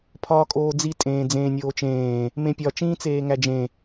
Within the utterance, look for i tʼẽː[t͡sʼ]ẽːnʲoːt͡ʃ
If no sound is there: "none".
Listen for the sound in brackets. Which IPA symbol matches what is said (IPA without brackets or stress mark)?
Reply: d͡z